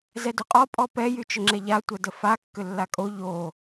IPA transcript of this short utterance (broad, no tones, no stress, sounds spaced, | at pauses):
z ɛ d ʏ qʼ ɔ pʼ ɔ p ɛ j y t͡ʃ ʏ ŋ͡ǁ ɛ ʎ a tʷ ə d ə f a kː ʏ lː a kʼ o ʎ o